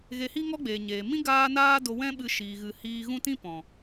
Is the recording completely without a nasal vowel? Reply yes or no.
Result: no